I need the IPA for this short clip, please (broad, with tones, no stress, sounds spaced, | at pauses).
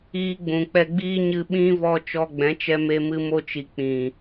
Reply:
iː˧ ɡ͡b ũ˨ k͡p ɛ˧ ɡ͡b iː˦ ɲ ɨ˧ ɓ ĩ˦ v ɔ˧ t͡ʃ ɔ˧ ɡ͡b ɛ̃˨˦ t͡ʃ ɛ˧ m e˧ m ɨ˧ m o˧ t͡ʃ i˨ k͡p ĩ˨